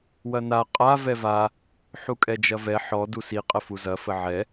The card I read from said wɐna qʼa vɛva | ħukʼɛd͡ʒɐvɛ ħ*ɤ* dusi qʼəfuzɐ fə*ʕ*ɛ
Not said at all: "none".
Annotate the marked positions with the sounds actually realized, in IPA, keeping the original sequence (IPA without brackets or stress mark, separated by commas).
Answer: ɔ, ʕ